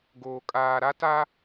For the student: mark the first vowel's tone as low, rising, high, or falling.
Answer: low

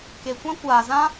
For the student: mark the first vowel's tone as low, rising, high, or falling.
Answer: low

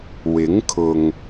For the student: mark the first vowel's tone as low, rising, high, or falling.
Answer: rising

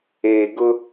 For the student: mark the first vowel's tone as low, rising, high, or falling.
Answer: low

